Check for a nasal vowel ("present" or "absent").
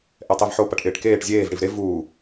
absent